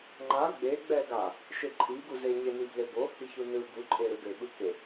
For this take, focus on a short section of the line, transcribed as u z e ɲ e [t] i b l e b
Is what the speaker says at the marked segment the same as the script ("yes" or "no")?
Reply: no